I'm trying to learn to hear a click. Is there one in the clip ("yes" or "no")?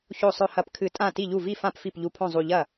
no